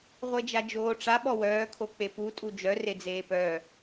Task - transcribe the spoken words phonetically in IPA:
ʁʷ e d͡ʒ a d͡ʒ oː ʈ͡ʂ a ɓ ɔ w œː kʰ o k͡p e p u tʼ u d͡ʒ œ r e d͡z eː p œ

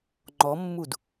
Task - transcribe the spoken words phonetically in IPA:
ŋ͡ǃ ɔ mː u d

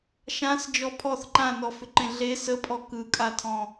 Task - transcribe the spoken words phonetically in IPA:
ʃ ã s d͡ʒ ɔ pʰ ɔ θ ǃ ã n ɔ f ʏ ǃ ẽ ɮ e s ə pʼ ɔ k ɯ kʼ a tʰ ɔ̃

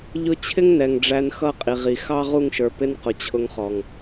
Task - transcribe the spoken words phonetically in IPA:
ʎ ʊ˧ t͡ɕʰ ɪ˦ ŋ n ɛ˨ ŋ ɖ͡ʐ æ˧ n x ʌ˦˨ qʼ i˨ ʁ i˨ x ɑ˦ ʁ u˦˨ ŋ ʃ ə˞˨ p ɪ˧ n q ʊ˨ t͡ɕʰ ʊ˧ ŋ χ ɔ˨ ŋ

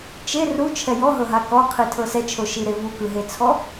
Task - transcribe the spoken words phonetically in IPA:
t͡ʃ e r u t͡ʃʰ ɛ j ɔ ɦ ɤ ɦ a k ɔ qʰ i tʰ ɤ s ɛ t͡ʃʰ o ʃ i ɾ e v u k ɯ ɦ e t͡sʰ ɔ

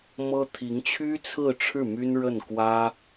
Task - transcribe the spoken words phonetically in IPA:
m ɤ˥ t̪ʰ i˧˥ ŋ t͡ɕʰ y˥ t͡sʰ ɹ̩˥˧ ʈ͡ʂʰ ɻ̩˥˩ m y˥ n ɻ ə˥˩ n k w ä˥

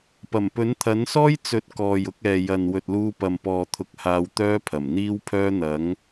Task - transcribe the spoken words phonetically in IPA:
p ɐ˨˩ m p ɵ˨˥ n t̪ʰ ɐ˨˥ n s ɔː˥ j t͡s ɵ˨˥ t̚ k ɔː˨ j ʊ˨˥ k̚ ɛː˨ j ɐ˨ n w ɵ˨ t̚ l uː˧ p ɐ˨ m p ɔː˨ t̪ʰ ʊ˧ k̚ h aː˧ w t̪ œː˥ pʰ ɐ˨˩ m n̪ iː˥ w pʰ œː˥ n̪ ɐ˨˥ ŋ

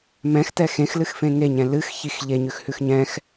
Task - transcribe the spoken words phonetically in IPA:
m ɛ̃ x t ɛ x ẽ x l ɨ x f ẽ ŋ e ɲ ɛ̃ l ɨ x ç i x ʎ e ɲ ʉ x h ʉ x ɲ ɛ̃ x

